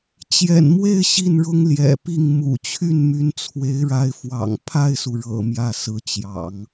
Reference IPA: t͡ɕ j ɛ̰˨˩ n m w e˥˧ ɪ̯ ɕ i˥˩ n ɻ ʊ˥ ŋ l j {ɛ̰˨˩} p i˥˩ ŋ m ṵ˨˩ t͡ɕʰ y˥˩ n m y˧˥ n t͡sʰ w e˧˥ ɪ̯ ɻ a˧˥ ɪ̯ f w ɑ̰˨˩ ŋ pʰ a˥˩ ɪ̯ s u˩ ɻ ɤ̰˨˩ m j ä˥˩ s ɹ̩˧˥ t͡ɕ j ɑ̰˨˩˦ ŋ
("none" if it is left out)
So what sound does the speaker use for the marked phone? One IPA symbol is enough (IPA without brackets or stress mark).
ɛ̰˨˩